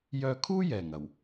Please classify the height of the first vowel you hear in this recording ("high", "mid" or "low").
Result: mid